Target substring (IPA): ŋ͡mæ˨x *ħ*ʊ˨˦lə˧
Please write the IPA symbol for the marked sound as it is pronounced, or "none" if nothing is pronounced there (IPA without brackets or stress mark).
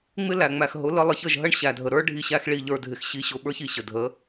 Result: ɦ